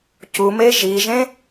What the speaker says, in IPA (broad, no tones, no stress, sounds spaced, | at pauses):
c u m e ʒ i ʒ ẽ